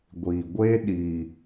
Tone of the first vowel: low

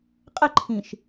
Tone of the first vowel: falling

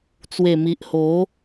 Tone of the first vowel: low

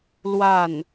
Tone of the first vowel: falling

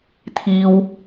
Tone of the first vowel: low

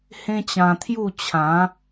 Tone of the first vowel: high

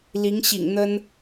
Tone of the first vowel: rising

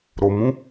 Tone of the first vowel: low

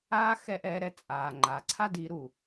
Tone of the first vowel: high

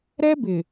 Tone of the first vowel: high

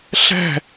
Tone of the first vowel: falling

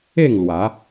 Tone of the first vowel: falling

